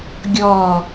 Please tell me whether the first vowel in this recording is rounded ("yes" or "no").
yes